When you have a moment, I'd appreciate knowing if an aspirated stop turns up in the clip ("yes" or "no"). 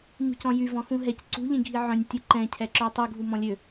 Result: yes